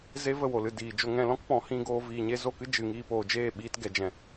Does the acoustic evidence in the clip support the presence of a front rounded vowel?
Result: no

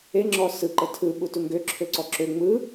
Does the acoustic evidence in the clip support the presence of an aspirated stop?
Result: yes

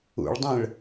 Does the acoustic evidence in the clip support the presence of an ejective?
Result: no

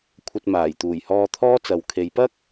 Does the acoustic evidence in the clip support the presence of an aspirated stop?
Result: yes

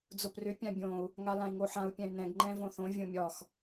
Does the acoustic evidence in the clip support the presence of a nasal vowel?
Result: yes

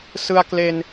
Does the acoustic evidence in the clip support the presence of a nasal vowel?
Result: no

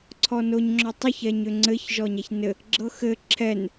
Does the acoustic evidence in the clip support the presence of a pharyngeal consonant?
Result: no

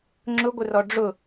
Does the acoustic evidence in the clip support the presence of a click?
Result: yes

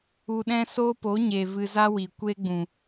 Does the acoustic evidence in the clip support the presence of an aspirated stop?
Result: no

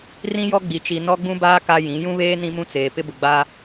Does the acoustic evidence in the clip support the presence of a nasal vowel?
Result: yes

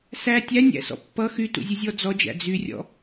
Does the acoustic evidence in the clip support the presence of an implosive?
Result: no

